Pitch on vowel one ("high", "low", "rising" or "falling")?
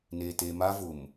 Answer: low